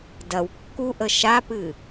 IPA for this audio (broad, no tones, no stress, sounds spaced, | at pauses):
d ɐ w kː u ʔ ə ʃ a p ɨ